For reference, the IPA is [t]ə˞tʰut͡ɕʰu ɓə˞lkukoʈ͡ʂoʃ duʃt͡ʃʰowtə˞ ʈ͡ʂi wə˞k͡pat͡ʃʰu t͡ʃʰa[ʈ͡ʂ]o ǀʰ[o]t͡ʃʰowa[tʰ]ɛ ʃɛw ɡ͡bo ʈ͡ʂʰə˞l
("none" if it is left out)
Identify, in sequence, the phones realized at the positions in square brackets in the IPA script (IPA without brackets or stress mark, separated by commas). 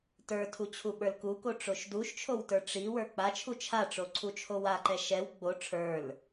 t, ʈ͡ʂ, u, ǃ